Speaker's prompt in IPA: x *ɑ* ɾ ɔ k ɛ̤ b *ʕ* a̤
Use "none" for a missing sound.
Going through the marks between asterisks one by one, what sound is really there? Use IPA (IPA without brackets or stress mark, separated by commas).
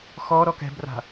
ɔ, r